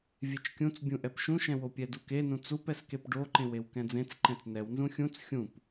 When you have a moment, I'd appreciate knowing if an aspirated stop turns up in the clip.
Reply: no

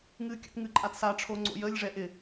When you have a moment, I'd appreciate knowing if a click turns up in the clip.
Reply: yes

